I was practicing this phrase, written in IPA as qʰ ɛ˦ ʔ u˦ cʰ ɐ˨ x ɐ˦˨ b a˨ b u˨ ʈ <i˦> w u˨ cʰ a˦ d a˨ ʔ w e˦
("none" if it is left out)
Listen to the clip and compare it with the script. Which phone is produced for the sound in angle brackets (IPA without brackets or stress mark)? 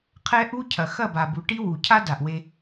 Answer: i˦